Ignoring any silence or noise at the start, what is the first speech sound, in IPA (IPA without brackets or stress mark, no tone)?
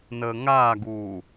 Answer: n